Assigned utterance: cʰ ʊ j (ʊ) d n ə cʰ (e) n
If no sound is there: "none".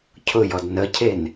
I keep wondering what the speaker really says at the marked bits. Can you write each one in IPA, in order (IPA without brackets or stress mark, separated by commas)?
ɔ, e